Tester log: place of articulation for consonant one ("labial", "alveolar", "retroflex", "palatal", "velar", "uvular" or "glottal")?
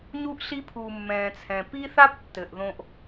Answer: palatal